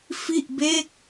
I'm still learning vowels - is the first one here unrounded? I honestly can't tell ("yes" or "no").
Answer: yes